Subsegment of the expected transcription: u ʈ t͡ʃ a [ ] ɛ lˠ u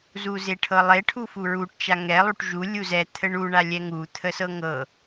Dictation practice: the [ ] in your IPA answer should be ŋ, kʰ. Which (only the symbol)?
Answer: ŋ